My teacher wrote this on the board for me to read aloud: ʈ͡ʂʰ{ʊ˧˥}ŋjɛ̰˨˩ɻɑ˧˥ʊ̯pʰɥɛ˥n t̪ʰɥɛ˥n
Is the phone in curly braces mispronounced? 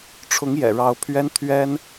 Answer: no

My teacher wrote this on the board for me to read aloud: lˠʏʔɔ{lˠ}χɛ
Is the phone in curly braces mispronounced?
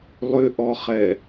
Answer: yes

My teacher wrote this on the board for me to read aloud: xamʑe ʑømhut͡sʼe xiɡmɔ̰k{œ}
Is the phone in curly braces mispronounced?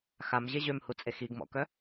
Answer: no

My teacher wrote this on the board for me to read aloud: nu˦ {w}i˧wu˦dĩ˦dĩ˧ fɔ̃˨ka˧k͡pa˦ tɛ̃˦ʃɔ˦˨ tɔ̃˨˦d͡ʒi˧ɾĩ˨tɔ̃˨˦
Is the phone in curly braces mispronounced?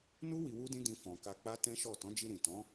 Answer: no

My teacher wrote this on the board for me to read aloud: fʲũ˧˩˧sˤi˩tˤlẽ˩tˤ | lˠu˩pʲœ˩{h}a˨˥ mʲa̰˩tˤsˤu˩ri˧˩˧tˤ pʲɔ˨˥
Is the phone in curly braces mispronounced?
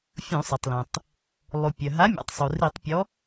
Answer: yes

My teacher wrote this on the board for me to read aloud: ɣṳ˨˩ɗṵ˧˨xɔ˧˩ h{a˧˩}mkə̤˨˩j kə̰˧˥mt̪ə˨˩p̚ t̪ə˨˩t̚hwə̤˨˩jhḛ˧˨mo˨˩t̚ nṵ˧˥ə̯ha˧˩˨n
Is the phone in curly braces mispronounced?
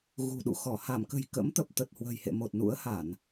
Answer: no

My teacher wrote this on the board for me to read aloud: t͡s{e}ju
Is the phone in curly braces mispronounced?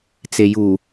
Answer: no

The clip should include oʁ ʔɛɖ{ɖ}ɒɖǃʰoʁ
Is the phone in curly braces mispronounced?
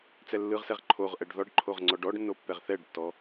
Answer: yes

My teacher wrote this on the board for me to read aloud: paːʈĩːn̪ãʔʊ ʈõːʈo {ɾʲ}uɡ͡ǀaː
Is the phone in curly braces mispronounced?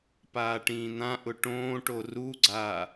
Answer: yes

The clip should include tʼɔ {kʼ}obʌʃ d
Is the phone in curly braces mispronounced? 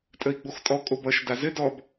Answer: no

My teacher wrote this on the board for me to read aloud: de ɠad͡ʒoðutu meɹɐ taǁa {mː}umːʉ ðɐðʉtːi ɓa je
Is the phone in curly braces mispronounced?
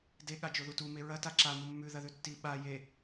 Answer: yes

